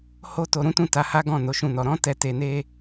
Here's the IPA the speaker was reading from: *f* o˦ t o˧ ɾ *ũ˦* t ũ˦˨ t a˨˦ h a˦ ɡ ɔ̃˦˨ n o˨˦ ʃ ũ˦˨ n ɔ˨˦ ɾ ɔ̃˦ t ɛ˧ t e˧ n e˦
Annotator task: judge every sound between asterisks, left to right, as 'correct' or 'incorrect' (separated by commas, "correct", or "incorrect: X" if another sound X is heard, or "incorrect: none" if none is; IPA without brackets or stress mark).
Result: incorrect: h, correct